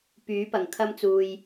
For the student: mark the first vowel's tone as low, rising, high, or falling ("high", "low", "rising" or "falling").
rising